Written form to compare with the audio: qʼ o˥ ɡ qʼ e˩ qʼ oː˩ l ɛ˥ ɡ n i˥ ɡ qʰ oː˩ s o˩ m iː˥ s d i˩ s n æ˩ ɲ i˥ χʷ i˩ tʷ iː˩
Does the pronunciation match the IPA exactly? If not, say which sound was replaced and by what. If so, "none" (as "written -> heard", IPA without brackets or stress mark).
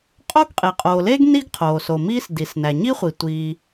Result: ɛ˥ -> e˥